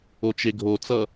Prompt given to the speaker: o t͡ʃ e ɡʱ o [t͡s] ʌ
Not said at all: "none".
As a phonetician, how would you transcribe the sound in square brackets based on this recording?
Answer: t͡s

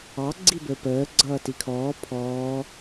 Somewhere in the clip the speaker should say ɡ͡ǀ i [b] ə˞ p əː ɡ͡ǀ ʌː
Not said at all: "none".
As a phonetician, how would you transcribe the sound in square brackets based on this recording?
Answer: b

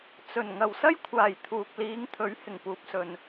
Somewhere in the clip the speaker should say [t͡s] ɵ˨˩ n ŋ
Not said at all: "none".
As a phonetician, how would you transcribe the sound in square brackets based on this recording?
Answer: t͡s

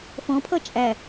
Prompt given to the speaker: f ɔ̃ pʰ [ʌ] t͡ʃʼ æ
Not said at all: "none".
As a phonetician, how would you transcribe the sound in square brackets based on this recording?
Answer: ʌ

